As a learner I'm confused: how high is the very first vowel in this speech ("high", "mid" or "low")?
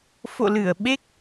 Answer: mid